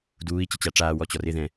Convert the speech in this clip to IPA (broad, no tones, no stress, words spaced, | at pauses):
duːi̯ t͡ɕət͡ɕaʈ͡ʂaː wɔt͡ɕɔrɪ ðɛ̃